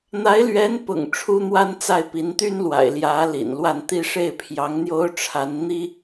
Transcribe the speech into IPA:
n̪ a˧˥ ɪ̯ l ɥ ɛ˧˥ n p ʊ̰˨˩ ŋ ʈ͡ʂʰ u˥ n̪ w a˥ n t͡s a˥˩ ɪ̯ p i˧˥ n t̪ y˥ n l w a̰˨˩ ɪ̯ l j ä˧˥ l ḭ˨˩ n l w a˥˧ n t̪ i˥˧ ʂ e˥˩ ɪ̯ pʰ j ɑ˧˥ ŋ n̪ j o˥ ʊ̯ ʈ͡ʂʰ a˧˥ n n̪ i˥

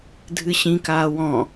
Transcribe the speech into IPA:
dʱ ɨ ɕ ĩ k aː w ɔ̃

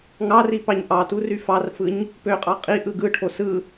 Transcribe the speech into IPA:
ŋ ɑ r i p ɑ ɲ ʔ ɑ t u r y f ɑ r f ɯ ɲ | p ø qʼ ɑ qʼ i ʔ ɯ ɡ ɯ ʈʰ o s ɯ

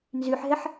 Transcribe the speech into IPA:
n z y ħ ɦ ɛ ħ

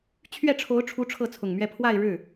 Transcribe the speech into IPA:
t͡ɕʰ ɥ ɛ˥˩ ʈ͡ʂʰ o˧˥ ʊ̯ ʈ͡ʂʰ u˧˥ ʈ͡ʂʰ ɤ˥˩ t͡sʰ ʊ˨˩ ŋ m ɥ ɛ˥˧ pʰ w a˥˧ ɪ̯ ɻ ɻ̩˥˩

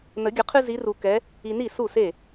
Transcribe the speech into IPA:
n ə˨˩˦ ɡʲ ə˨˩˦ qʰ ɨ˦ z i˨˦ r u˨ k ɛ˨˦ | i˨ n i˥˩ s u˥˩ s e˥˩

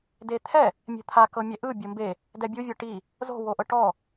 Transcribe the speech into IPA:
d e t̪ʰ ɛ | mʲ ɛ̤ t̪ʰ a k ɤ mʲ ɛ ʔ ɯ bʲ ɤ m b e | d ɛ bʲ u vʲ ɤ ʈ i | z o̤ w o ʔ ɤ ʈ ɔ

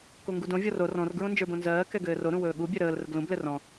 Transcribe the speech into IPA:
k o ŋ ɡ u d õ vʲ ɔ r o r ɔ̃ r ɡ ɹ õ n d͡ʒ ə˞ b õ n z ɜː k ɛ ɡ ɘː r o ɾ ũ w ɵː ɠ u bʲ ɛ ɾ əː l r ə ɡ l ũ b l ɘ r ɔ̃

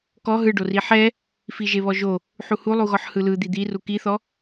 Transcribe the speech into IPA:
k ɔ ɦ ɯ ɖ o r i ħ ɛ | f i ʒ e β ɔ ʒ o | ħ u h u lˠ u ɣ ɔ ħ h ɯ l ɯ d̪ i d̪ i r u k i θ ɔ

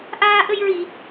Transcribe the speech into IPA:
ʔ aː˧ ʔ ə˧ j ɹ i˨˩˨

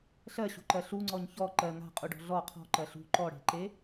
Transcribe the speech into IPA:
ɬ ɜ ɕ ṳ ǃ ɜ ɬ u ŋ͡ǀ ɔ ɲ ç ɔ ǃ ɜ ŋ a̤ qʼ u ɖ ɔ̤ ɮ ɔ qʰ ɔ̤ ǃ ɜ ɬ ṳ ǃ ɔ ɽ e̤ ǃ e

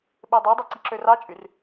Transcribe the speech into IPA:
ɓ e dˤ e dˤ e ǀ i ǁ ø r ɑ t͡ʃʼ y r

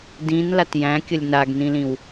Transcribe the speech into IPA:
d ĩ n l a t j æ̃ kʲ ə lʲ n a ɡ n ĩ l ĩ w

